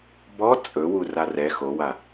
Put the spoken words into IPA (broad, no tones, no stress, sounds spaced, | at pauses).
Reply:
b ɔ t͡sʼ ɵ w u r a r ɛ x o w a